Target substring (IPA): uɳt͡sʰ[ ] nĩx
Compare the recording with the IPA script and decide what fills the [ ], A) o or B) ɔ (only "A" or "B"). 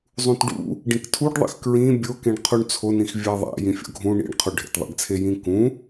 A